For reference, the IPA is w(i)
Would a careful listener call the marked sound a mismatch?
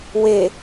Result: yes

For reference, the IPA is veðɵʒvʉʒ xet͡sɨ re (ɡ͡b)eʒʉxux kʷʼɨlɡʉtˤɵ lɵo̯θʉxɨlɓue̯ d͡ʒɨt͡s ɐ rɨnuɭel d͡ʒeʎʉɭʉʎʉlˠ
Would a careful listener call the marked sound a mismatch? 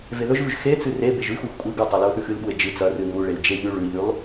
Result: yes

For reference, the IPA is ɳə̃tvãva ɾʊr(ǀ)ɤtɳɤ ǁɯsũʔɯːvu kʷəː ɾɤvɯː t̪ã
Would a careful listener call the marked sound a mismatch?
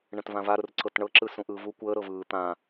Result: no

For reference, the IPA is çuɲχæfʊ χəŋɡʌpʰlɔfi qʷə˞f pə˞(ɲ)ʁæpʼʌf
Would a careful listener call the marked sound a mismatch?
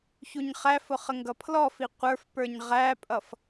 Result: no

